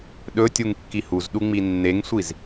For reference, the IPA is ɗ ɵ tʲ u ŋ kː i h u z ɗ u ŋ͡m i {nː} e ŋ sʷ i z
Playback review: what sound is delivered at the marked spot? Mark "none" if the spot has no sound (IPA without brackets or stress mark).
nː